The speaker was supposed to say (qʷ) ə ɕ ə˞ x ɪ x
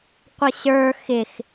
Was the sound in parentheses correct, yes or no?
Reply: yes